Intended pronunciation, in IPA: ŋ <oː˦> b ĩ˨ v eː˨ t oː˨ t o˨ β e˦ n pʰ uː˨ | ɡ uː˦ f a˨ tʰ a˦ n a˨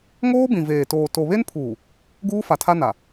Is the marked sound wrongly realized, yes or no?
no